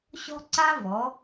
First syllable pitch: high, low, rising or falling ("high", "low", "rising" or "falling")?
high